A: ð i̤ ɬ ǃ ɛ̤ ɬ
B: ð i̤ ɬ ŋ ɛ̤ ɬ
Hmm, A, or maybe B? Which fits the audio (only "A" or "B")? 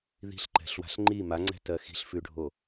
A